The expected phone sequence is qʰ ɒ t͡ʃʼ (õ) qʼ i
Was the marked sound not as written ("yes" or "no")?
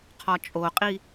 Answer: yes